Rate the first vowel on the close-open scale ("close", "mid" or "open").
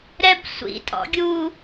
mid